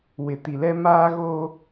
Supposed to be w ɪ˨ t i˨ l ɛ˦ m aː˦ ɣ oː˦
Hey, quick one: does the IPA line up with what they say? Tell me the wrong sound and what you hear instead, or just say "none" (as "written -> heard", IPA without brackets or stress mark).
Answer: none